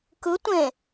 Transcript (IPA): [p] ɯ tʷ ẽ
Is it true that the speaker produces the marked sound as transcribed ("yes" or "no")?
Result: no